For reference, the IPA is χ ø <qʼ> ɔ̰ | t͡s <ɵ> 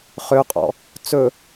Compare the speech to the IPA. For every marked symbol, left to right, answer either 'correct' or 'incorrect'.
correct, correct

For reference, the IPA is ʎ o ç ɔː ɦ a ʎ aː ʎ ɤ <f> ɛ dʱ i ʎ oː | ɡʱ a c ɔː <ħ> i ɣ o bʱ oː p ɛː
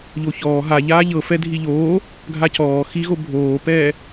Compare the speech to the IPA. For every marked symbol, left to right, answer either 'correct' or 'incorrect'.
correct, incorrect

